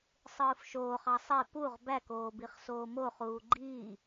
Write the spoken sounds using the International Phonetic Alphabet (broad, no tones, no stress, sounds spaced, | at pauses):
sˤ ɯː f ʃ oː χ ɑ sˤ e p u ʁ b æ k oː b i χ s oː m o χ uː ɡ͡ǃ iː